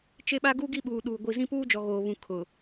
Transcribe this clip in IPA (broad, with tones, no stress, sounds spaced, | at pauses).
t͡ʃ e˦ ɓ a˦ ɡ uː˦ ɡ i˦ ɓ uː˨ ɗ uː˨ ɡʷ i˨ z ĩ˦ p uː˦ d͡ʒ ɔ˨ ɣ oː˨ β ũ˨ kʰ ʊ˨